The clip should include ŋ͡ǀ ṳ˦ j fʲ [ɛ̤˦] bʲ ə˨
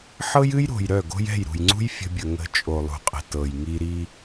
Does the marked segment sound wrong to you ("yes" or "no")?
yes